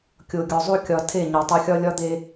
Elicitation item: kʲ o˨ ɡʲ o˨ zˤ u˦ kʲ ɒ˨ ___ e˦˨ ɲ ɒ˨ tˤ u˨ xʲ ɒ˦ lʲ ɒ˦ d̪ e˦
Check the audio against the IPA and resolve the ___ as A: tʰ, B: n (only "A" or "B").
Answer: A